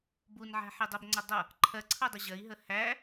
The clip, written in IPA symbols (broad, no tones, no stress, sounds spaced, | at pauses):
b u n ʕ æ̤ ħ i dˤ ʌ b ŋ͡ǀ ɒ dˤ ʌ | ǃʰ ɜ ǀʰ ʌ dˤ ə ʑ ɜ i̯ ɦ ə h æ